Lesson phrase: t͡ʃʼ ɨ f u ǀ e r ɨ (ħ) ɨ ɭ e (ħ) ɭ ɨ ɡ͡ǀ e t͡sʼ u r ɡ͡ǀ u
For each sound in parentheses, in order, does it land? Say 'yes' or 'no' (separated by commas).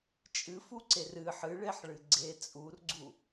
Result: yes, yes